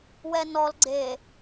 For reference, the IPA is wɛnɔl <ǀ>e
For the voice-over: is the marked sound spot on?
no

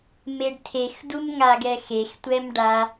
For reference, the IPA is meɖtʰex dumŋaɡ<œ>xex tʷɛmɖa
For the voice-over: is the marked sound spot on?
no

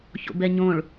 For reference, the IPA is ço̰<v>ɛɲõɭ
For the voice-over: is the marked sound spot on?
no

